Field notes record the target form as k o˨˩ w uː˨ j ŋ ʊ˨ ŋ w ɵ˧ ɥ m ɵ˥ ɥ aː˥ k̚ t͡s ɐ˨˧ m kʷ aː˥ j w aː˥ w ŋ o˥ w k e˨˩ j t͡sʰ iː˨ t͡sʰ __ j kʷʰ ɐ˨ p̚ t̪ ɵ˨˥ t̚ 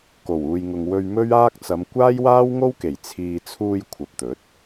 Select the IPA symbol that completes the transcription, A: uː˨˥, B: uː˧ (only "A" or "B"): B